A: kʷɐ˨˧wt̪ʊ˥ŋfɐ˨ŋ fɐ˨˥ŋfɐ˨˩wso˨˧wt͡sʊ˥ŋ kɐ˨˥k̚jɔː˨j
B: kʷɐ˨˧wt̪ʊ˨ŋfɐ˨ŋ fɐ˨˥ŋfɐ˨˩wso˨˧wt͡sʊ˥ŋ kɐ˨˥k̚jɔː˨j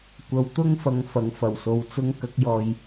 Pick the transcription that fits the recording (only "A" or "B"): A